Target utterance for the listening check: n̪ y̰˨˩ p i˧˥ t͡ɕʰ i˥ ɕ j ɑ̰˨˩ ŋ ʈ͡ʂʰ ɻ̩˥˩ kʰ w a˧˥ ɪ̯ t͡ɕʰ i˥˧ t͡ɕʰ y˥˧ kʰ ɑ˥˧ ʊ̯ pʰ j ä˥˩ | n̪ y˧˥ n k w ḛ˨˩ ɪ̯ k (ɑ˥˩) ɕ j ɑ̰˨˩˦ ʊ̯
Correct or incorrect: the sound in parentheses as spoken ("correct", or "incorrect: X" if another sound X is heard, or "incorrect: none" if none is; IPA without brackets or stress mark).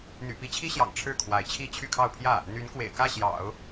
incorrect: ä˥˩